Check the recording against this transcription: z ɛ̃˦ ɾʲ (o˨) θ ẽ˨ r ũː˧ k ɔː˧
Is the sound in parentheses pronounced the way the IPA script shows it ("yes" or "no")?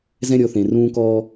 no